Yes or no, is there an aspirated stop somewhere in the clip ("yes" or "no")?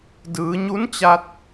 no